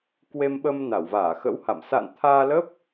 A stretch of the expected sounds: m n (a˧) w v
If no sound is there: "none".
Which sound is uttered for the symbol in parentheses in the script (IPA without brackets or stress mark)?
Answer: a˧˩